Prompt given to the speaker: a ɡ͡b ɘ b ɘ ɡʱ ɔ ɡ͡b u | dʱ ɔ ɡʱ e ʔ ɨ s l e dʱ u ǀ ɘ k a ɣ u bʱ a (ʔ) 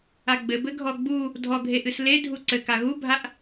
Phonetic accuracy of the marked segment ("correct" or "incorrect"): correct